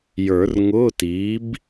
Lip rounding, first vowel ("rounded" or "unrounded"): unrounded